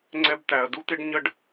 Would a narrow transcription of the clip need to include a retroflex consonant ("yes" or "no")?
yes